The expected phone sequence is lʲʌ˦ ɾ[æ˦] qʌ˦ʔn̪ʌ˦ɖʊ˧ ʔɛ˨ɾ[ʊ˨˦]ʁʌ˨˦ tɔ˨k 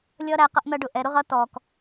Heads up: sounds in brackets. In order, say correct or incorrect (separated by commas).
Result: correct, incorrect